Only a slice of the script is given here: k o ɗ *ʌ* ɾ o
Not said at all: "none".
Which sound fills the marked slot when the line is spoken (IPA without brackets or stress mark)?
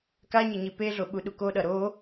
ʌ